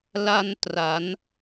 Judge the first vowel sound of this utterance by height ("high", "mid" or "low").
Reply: low